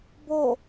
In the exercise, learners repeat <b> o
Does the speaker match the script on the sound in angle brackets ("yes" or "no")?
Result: yes